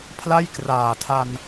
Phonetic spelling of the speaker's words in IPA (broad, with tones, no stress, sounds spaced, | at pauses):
pʰ l a˥˩ j k r aː˨˩ tʰ a˧ n